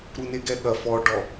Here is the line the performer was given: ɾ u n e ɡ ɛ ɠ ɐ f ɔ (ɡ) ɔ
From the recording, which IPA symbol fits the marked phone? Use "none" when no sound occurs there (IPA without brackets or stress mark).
ɖ